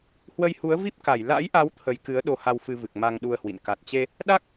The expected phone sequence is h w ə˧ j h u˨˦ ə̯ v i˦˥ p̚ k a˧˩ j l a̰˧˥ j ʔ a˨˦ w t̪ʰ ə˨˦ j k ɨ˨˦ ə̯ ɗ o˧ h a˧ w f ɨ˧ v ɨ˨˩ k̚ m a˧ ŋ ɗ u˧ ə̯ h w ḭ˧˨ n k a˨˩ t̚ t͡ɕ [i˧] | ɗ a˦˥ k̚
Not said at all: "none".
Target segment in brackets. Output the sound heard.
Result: e˧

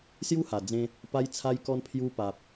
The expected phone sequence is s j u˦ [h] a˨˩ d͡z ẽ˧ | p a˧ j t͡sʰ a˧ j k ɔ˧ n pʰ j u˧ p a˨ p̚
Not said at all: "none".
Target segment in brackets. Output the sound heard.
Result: h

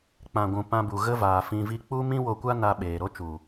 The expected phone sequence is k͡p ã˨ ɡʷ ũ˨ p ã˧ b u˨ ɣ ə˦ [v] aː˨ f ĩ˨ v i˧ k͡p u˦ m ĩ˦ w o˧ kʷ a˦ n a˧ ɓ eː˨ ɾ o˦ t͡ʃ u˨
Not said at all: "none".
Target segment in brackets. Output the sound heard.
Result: v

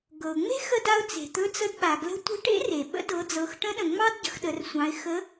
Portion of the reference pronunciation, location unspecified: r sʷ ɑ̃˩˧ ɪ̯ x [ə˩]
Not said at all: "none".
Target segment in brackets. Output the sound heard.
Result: ə˧˥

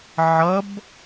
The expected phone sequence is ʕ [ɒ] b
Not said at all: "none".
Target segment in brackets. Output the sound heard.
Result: ʌ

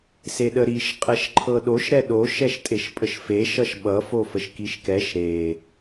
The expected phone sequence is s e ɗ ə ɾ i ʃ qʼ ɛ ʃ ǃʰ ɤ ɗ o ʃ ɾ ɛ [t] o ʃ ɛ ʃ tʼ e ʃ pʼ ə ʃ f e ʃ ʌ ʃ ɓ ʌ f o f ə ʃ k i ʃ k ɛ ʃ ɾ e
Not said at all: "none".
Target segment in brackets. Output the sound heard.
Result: ɗ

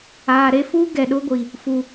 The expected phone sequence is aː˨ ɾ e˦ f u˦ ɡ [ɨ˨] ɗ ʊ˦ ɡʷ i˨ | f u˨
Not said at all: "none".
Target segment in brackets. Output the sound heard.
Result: ɛ˨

